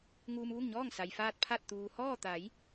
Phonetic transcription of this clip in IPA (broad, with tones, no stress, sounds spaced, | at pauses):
ŋ uː˧ m ʋ u˥˨ ŋ ɲ ɔː˥˨ ŋ s a˩ j f aː˧ t̚ pʰ a˧˩ t̚ t̪ uː˩ h ɔː˥˨ t̪ a˩˧ j